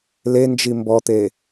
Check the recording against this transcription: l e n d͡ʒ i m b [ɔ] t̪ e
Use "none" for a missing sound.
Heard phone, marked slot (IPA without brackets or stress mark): ɔ